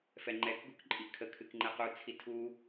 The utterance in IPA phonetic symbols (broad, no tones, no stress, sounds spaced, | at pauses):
f ɛ ŋ͡ǃ ɛ k ɡ u k ǃʼ i kʰ ə kʰ ɨ k ŋ͡ǃ ɛ q u t͡sʰ i tʰ u